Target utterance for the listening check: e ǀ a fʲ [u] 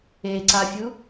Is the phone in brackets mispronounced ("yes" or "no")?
no